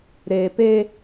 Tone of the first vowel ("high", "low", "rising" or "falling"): low